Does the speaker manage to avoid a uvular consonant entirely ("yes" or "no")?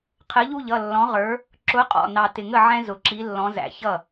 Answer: no